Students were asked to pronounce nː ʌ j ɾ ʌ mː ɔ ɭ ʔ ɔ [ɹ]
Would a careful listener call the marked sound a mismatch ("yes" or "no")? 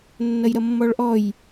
yes